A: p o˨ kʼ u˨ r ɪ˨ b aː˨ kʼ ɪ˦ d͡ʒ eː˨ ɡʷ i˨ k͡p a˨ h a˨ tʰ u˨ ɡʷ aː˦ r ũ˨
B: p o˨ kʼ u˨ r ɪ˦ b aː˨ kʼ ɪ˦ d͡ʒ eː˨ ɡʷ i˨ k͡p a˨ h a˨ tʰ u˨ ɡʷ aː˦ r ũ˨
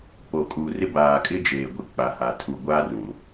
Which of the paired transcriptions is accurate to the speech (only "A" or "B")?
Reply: B